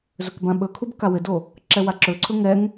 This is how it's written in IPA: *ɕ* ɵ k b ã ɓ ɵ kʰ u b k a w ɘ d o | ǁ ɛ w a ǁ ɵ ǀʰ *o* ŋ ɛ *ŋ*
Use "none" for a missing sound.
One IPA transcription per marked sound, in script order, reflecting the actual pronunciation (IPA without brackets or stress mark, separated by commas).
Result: z, ɵ, ŋ